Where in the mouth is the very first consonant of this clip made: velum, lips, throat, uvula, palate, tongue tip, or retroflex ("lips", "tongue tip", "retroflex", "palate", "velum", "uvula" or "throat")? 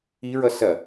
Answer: tongue tip